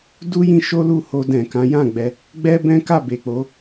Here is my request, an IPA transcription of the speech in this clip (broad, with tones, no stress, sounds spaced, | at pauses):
d u˦ j ĩ˧ ʃ o˦ l u˦˨ h o˧ d ɛ̃˨ k ã˨˦ j ã˦˨ ɡ͡b ɛ˧ | ɡ͡b ɛ˦ b ɛ̃˦ k a˦˨ b e˨ k͡p o˨˦